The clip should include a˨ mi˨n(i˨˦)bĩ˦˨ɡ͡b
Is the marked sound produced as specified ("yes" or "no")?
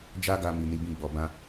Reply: yes